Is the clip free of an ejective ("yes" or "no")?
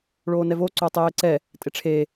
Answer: no